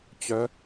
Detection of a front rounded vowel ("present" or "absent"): present